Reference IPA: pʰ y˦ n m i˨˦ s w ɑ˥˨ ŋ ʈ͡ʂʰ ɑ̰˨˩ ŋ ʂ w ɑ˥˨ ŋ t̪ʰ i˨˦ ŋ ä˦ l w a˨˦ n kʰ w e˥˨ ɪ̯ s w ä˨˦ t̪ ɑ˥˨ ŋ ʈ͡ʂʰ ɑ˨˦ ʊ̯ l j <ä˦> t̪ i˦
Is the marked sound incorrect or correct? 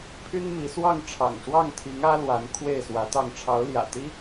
incorrect